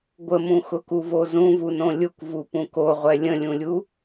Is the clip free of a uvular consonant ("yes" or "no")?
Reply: no